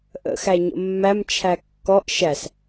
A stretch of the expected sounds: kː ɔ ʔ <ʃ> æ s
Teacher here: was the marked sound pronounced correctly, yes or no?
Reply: yes